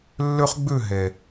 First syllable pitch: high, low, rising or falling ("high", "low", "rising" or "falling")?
high